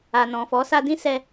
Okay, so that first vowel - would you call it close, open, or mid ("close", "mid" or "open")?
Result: open